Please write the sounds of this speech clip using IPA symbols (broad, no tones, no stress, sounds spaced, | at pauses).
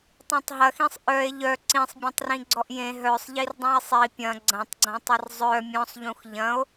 tˤ ẽ tˤ ɦ ɐ x ĩ sˤ ʔ œ e̯ ʎ œ ǀ ĩ sˤ bʲ ɐ̃ tˤ r ĩ ɡ͡ǀ ɔ ʔ j ẽ ɦ œ sˤ ʎ i r dˤ ĩ e̯ sˤ i pʲ ɐ̃ ɡ͡ǀ ɐ̃ tˤ ɡ͡ǀ ɐ̃ tˤ ɐ r zˤ œ mʲ ɔ̃ sˤ ʎ ũ x ʎ ɐ̃ o̯